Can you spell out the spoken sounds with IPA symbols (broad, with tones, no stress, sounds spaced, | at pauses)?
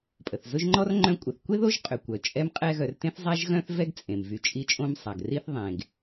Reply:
pʼ ə˩ θ z ʊ˦ ʒ ŋ͡ǃ ɔ˥ r ŋ͡ǃ œ̃˥ kʷʼ ə˨ θ kʷ e˥ ð o˦ ʒ qʼ ʏ˨ kʷ œ˩ t͡ʃʼ ɛ˦ m qʼ ɛ˦ ɣ œ˨ r t ẽ˥ θ zˤ a˥ ʒ ɣ œ̃˥ θ v ɛ˦ ɡ t͡sʼ ẽ˩ m v y˨ t͡ʃʼ i˦ t͡ʃʼ õ˥ m sˤ a˩ ɡ r i˦ θ ðˤ ẽ˩ ɡ